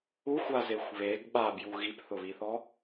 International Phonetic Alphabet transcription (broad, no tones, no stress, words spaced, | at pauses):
uxʷazexʷ βeɡ ɓabju ɣipθʊβiθɔ